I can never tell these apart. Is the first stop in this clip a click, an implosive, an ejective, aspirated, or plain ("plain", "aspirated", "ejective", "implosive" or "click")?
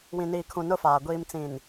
aspirated